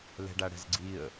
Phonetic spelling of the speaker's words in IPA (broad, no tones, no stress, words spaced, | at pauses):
lɛ̤ɖaɽɛ̤zɡ͡ǀiə̯